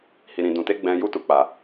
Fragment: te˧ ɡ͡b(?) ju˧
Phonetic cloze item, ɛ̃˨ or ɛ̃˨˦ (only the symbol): ɛ̃˨